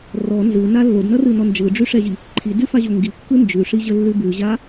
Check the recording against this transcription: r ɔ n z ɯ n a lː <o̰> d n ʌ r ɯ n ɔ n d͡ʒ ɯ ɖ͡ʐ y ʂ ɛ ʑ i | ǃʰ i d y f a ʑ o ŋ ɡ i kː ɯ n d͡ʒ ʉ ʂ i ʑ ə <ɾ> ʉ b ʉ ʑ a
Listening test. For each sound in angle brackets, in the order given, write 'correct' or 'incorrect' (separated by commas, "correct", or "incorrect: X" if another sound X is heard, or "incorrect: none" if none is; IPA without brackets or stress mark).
incorrect: o, incorrect: lː